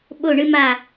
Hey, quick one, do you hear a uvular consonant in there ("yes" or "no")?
no